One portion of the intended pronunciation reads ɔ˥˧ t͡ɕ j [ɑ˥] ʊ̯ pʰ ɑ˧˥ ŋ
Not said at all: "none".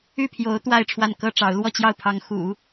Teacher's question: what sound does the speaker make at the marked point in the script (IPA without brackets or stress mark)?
ɑ˥˩